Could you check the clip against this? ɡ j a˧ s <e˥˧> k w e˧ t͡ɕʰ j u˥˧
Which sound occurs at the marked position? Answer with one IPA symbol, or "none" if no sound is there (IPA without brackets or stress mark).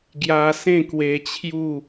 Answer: ẽ˥˧